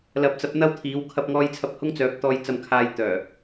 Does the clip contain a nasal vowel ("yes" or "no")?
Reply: no